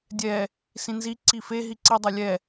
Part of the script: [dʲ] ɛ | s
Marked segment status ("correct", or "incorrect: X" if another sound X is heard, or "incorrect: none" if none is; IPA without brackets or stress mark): correct